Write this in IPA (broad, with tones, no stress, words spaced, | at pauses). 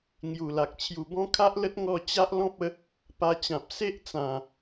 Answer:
ŋju˨˩la˨k̚ t͡ɕʰju˨˩bɔ̃˦kʰa˦ʔlə˦t̚ ŋɔ˥˧ t͡ɕa˦ʔlɔ̃˦p̚ə˨˦ | pa˧t͡ɕã˨p̚ se˦ʔt͡sã˨˩